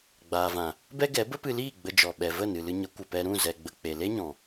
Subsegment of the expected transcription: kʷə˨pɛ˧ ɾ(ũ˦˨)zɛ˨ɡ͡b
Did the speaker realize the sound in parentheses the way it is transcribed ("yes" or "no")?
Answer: yes